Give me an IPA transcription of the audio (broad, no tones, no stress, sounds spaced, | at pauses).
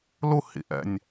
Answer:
l u h ḭ ʔ ɛ̰ nʲ